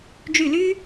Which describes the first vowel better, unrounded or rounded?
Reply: rounded